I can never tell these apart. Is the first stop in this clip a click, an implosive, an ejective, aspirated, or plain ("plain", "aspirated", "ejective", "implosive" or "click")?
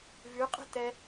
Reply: ejective